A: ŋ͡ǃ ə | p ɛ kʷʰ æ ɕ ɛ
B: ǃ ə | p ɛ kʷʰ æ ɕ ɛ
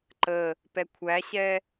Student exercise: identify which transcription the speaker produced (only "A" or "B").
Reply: B